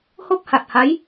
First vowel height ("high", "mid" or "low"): mid